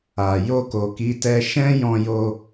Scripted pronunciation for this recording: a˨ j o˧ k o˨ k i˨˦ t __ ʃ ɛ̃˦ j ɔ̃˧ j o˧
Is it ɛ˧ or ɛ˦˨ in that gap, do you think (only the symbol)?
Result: ɛ˧